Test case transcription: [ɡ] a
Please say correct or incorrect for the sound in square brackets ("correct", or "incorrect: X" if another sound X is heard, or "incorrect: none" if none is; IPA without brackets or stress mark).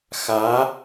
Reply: incorrect: x